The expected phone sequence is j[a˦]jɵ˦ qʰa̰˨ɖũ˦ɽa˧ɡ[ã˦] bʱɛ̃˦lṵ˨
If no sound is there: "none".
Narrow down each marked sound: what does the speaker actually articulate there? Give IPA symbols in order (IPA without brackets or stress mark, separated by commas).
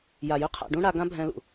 a˨, ã˦